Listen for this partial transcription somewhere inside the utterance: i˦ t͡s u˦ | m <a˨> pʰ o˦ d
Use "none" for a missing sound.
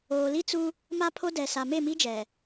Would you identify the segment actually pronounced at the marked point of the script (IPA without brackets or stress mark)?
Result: a˦